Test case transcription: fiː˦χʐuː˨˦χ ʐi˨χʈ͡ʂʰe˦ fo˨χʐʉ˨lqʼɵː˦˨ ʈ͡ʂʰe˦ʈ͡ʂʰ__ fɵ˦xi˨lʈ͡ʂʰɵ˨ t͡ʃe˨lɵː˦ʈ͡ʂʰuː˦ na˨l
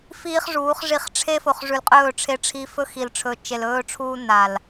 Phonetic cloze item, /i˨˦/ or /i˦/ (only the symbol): i˦